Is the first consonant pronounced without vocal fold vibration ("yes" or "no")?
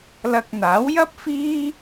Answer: no